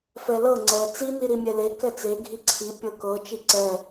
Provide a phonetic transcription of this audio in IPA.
f ɛ l ɤ ŋ͡ǀ ɛ t͡s i n i ɾ i mʲ ɛ l e k ɛ t͡s e ɡʱ i ǀʰ i pʲ ɤ k ɤ t͡ʃ i ǀ ɛ

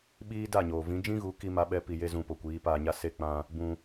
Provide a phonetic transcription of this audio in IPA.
ɓ iː˦ d a˦˨ ɲ oː˨ v ĩ˨˦ d͡ʒ ĩ˦ ɣ u˨˦ k i˦ m a˦ ɓ ɛ˦ p i˧ j e˦ z ũ˧ p o˨ kʷ iː˨˦ p aː˧ ɲ a˦ s e˦˨ k͡p ã˧ | b ũ˧

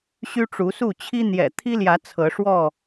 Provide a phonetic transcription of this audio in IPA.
ɕ y˦ ʈ͡ʂ u˨˦ s u˥˨ t͡ɕʰ i˦ n̪ j ɛ̰˨˩ t̪ʰ i˦ l j ä˨˦ t͡sʰ ɤ˨˦ ʂ w ɔ˥˨

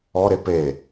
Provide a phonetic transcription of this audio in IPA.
ɔ ɾ e p e

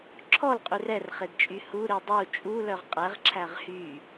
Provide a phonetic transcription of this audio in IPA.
ǁʰ ɔ l qʼ y r ɛ r χ e d t͡ʃʼ y h u ɾ i dˤ u t͡ʃʼ u l œ ʁ qʼ ɛ ʁ ǁʰ æ ʁ h y

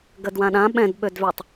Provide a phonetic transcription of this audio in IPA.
ɡ ə d w ã ɗ ã ɓ ɛ̃ d ɓ ø d v ø tˤ

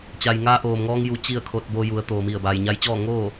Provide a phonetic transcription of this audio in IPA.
t͡ɕ a˩ j ŋ aː˧ ʔ oː˩ m ŋ ɔː˧ ŋ j u˧˥ t͡ɕ i˥˨ ə̯ kʰ o˧ t̚ b o˧ j u˩˧ ə̯ t̪ oː˩ m i˧˩ ə̯ b aː˩ j ɲ a˧ j t͡ɕ ɔː˥˨ ŋ oː˥˨

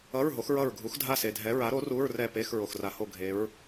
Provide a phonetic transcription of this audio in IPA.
ʌ˧˥˧ ɹ ɦ o˨˥ x ɹ ʌ˦˨ ɹ ɡʱ u˨˥ x dʱ a˦˨ s e˨ dʱ ɛ˨˥ ɹ a˨˥ ɾ o˨˥ r u˧˥˧ ɹ r ɛ˦˨ p e˧˥˧ x ɹ o˨ x r a˨ h o˦˨ ɡʱ e˨˥ ɹ

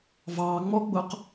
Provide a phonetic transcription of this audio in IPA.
v ɑ ŋ͡m ɔ ɡ͡b ʊ q

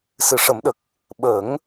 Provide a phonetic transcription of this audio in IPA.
s ɨ˨˩˨ ʂ ə˨˩˦ m ɗ ə˨˩ k̚ | ɓ ə˨˩˦ ŋ

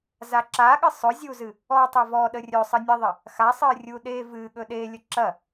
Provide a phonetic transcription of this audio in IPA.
z a ǁ a ɠ ɨ sˤ ɵ zʲ u z ɨ | ɔ tˤ e v ɔ ɗ ə rʲ ɵ sˤ ə nʲ e ðˤ ə | x a sˤ ɨ rʲ u ɗ e v ɨ ɠ ɵ ɗ e lʲ ə ǁ ɐ

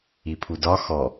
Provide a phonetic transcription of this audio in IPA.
i pʰ u d ɒ x ɔ

